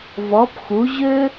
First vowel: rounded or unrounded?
rounded